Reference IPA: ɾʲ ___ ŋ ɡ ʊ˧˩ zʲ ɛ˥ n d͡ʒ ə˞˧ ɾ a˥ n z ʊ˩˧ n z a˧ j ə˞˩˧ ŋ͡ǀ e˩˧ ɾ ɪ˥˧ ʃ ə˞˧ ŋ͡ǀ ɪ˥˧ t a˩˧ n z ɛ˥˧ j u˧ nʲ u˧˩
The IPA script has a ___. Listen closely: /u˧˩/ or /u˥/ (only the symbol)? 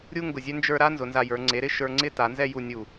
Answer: u˥